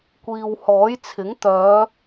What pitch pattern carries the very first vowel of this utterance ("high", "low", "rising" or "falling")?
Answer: low